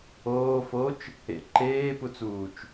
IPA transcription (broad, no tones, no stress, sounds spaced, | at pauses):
oː f o t͡ʃ | ḛ ǃ eː p u t͡s uː t͡ʃ